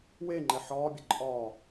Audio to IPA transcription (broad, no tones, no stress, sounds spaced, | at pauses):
w e ŋ͡ǃ ɛ ħ ɒː bʲ ə ǃʼ ɒː